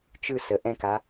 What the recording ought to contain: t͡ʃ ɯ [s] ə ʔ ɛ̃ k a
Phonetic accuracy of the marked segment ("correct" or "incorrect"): correct